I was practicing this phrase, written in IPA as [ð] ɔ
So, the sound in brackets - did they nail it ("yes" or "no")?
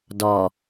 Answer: no